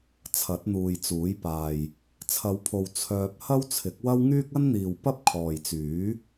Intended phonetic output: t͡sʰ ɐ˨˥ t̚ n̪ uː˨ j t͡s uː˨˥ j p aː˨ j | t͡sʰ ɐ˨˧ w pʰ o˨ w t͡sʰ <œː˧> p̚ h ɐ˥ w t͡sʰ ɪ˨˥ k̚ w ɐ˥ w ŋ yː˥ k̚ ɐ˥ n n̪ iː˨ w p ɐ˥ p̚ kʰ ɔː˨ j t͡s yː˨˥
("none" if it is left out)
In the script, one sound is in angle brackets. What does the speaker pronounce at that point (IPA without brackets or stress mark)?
œː˧